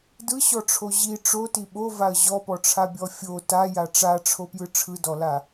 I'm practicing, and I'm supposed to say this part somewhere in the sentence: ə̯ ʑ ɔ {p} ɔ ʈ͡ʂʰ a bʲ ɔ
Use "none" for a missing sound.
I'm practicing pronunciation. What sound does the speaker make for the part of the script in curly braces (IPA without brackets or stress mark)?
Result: p